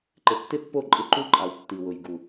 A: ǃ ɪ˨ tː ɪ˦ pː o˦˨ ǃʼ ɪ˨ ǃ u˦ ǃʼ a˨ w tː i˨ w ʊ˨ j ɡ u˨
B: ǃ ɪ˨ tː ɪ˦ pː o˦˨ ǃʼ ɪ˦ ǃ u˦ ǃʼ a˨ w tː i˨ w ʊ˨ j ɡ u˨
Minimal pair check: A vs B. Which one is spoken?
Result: B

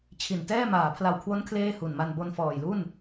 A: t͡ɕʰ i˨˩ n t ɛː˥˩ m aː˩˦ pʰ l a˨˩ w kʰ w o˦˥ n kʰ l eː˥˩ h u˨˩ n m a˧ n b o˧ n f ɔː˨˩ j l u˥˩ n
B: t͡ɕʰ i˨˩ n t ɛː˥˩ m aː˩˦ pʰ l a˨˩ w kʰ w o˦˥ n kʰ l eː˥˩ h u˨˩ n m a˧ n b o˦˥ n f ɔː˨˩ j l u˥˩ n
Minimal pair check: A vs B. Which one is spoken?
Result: A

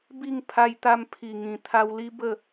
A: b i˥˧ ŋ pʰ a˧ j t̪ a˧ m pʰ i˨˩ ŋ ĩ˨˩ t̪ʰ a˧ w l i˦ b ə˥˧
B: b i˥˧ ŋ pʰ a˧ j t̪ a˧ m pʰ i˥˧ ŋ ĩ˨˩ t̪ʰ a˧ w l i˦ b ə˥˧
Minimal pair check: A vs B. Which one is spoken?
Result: A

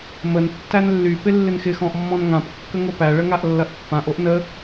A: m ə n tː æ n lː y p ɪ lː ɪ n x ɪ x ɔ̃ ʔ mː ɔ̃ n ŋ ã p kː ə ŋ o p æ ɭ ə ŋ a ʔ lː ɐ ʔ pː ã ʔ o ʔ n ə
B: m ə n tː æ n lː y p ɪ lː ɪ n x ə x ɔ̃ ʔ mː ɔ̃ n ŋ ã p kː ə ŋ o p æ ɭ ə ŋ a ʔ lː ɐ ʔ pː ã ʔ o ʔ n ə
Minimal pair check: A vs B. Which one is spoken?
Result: A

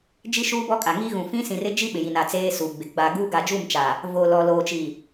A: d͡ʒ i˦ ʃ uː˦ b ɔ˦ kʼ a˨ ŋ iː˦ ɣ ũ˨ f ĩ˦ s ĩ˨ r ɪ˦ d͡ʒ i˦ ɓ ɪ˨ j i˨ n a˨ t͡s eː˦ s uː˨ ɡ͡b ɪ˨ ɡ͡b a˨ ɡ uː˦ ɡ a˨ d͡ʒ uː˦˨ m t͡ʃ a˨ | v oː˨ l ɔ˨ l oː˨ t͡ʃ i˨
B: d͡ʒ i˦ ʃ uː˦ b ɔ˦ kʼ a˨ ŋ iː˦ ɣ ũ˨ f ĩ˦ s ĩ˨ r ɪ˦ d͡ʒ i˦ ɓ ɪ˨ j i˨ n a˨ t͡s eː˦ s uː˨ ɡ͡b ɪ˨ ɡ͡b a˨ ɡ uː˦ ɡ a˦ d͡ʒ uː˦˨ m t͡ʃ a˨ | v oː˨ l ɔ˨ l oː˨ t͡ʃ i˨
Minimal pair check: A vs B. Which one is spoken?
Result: A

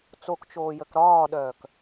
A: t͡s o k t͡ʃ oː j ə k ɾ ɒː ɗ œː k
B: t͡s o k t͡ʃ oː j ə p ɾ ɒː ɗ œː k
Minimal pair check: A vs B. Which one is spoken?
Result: A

